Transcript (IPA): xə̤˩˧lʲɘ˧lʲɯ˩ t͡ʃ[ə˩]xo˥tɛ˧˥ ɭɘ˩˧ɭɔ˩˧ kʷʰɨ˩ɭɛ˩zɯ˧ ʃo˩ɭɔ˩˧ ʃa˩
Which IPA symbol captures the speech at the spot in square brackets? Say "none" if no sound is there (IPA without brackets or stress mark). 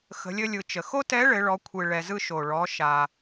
ə˩